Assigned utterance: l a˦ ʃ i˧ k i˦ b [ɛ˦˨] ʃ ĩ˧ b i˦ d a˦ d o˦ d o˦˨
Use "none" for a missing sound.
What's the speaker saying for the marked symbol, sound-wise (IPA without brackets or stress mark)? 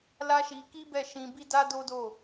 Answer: ɛ˦˨